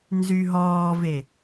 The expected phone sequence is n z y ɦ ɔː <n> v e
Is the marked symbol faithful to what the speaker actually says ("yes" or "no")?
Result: no